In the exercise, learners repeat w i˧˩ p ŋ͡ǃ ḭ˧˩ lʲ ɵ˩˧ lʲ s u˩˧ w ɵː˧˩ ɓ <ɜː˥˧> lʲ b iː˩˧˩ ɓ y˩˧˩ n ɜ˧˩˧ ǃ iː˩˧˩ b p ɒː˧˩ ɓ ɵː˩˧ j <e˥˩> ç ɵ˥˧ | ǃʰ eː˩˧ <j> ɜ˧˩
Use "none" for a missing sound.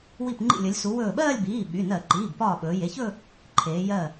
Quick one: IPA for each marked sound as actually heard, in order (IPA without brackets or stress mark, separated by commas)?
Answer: ɜː˥˧, e˩˧˩, j